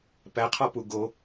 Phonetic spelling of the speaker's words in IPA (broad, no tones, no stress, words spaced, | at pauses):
pæqʰɒpu ɡo